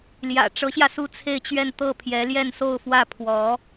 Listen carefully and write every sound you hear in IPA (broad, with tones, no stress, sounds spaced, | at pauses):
l j ä̰˨˩ ʈ͡ʂ ɤ˧˥ ɕ j ä˧ s u˥˧ t͡sʰ e˥˧ ɪ̯ t͡ɕ ɥ ɛ˥˧ n t̪ ɤ˥˩ pʰ j ɛ˧˥ l j ɛ˥˧ n s o˥˧ ʊ̯ f w ä˥˩ pʰ w ɔ˧˥